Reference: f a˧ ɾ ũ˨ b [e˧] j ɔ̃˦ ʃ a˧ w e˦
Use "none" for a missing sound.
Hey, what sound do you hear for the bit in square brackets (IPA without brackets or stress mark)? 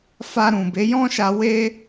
e˨˦